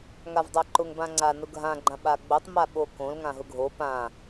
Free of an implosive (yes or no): no